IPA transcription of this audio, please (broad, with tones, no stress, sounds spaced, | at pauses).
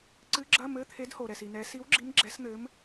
ǀ ɨ˧˥ ɡ͡ǁ ɐ˧˥˧ m ɘ˧˥˧ t̪ʰ e˧˥ d h o˨ ɾ ɛ˨ s i˨ n ɛ˧˥ s i˧˥ w ɡ͡ǁ i˧˥ m ɡ͡ǁ ɛ˧˥ s n̪ ɘ˧˥ m